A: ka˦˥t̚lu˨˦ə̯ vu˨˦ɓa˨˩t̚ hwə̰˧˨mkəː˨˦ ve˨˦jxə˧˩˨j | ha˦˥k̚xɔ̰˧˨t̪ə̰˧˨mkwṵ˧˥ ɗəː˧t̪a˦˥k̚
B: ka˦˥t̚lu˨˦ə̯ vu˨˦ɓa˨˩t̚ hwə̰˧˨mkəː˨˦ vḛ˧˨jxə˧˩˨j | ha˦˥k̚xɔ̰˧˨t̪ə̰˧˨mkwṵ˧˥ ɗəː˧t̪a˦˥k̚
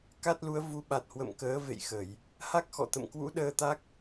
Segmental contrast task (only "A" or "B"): B